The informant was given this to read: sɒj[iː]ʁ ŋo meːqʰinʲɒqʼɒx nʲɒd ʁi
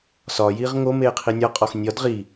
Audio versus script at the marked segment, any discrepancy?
no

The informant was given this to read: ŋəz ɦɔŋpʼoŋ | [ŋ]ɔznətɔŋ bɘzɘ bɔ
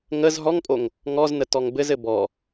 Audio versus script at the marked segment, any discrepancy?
no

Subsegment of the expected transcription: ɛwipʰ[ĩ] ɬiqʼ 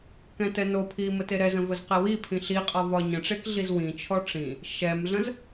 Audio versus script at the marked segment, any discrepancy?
no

